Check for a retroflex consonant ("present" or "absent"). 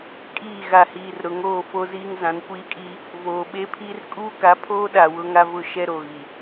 absent